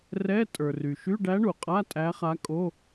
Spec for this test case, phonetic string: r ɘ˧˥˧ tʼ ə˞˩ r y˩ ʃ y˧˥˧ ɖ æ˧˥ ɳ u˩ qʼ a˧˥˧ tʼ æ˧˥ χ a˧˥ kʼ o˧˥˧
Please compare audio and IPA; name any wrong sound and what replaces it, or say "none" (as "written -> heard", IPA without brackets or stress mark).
ɘ˧˥˧ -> ɛ˧˥˧